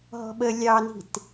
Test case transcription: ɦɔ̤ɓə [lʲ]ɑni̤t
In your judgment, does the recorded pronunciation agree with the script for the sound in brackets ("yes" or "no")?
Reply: yes